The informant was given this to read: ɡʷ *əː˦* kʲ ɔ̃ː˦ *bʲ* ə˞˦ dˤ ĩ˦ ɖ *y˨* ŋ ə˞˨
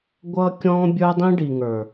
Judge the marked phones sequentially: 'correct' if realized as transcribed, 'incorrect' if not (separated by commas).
incorrect, correct, incorrect